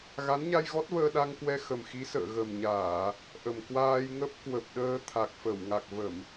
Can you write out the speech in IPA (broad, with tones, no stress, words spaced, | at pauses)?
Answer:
ɣa˨˦nɲa˧jɣɔ˦˥t̚vəː˧ ɗa˧ŋ kwɛ˧xə˨˩mxi˨˦ sə̰ː˧˨ ɣə˨˩mɲaː˧˩˨ | ʔə˨˩m kwaː˧j ŋə˦˥p̚kwə˨˩p̚ɗəː˧ t̪ʰa˨˩k̚fə˧˩wŋa˨˩k̚ və˧˩˨m